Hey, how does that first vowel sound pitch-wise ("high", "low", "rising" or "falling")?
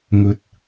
rising